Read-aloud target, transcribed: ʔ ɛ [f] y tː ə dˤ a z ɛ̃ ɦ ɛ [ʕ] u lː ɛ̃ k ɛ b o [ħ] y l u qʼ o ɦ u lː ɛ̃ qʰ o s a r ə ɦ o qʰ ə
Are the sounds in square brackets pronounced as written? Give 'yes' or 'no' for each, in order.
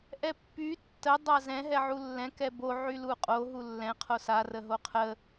no, yes, no

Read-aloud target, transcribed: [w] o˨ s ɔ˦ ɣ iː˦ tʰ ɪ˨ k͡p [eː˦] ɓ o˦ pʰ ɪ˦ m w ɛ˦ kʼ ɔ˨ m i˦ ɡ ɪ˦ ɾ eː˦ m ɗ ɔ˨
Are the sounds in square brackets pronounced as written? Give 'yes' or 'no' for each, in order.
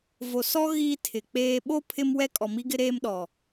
no, yes

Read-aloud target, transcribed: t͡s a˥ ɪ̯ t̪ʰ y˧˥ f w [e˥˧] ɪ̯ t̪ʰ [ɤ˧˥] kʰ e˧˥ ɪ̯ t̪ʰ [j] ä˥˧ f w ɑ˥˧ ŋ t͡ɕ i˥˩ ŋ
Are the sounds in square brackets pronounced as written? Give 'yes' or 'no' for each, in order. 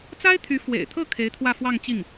no, no, no

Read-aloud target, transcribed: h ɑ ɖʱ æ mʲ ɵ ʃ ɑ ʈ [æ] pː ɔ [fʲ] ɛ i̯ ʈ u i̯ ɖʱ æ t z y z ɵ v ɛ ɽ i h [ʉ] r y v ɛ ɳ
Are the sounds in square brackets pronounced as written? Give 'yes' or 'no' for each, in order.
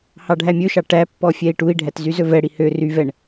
yes, yes, no

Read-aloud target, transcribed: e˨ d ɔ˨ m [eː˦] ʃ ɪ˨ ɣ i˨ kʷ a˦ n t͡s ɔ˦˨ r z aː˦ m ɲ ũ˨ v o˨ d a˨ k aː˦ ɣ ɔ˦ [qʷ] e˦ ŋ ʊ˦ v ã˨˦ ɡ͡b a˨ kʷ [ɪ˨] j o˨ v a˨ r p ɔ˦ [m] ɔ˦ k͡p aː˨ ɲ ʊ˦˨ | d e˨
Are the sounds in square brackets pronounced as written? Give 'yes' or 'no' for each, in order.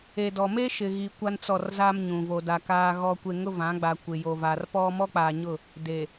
no, no, yes, yes

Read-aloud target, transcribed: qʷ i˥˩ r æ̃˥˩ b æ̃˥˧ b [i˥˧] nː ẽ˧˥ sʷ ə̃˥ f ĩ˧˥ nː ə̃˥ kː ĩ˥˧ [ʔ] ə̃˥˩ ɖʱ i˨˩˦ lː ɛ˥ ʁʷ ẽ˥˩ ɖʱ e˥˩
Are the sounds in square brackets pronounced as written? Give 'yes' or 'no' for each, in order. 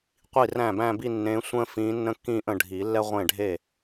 yes, yes

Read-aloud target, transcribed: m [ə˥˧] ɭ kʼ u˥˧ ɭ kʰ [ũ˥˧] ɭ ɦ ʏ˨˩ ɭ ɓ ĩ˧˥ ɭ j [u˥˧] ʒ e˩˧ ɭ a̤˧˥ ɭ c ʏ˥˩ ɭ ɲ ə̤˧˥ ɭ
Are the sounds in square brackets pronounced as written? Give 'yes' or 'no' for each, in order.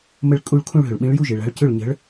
yes, yes, yes

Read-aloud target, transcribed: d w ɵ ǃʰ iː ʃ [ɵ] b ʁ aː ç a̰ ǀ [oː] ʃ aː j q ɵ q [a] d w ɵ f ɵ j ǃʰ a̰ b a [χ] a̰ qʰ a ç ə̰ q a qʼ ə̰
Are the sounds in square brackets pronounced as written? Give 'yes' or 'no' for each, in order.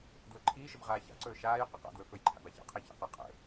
no, no, no, no

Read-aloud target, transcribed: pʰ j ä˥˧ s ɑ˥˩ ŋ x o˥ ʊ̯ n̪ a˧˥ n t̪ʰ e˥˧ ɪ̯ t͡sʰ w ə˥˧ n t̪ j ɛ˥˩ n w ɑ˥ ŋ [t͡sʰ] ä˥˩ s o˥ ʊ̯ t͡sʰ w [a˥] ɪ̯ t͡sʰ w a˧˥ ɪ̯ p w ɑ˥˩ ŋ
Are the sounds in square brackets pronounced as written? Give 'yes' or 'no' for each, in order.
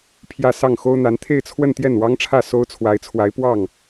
no, no

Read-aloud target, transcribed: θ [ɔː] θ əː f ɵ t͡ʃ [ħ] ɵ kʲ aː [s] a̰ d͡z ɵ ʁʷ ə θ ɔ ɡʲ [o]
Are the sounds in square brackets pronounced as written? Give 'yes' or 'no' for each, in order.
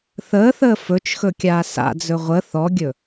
no, no, yes, no

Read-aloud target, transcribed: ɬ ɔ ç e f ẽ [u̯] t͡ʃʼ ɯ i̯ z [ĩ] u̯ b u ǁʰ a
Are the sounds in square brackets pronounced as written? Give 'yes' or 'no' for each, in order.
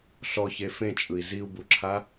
no, no

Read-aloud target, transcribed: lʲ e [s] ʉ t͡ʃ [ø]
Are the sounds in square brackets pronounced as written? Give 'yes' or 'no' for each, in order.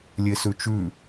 yes, no

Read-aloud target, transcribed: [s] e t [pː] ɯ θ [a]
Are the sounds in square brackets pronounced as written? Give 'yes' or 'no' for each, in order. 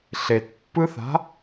no, yes, no

